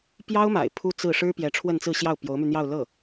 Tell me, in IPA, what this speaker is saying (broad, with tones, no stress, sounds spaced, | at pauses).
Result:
p j ɑ˥ ʊ̯ m a̰˨˩ ɪ̯ pʰ u˥ t͡s ɹ̩˥˩ ʂ ɻ̩˥ p j ɛ˧˥ ʈ͡ʂʰ w ə˥˧ n t͡s ɹ̩˥˧ ɕ j ɑ˥˩ ʊ̯ p j o˧˥ ʊ̯ m y˧ n̪ j ɑ˥˧ ʊ̯ l ɤ˥˩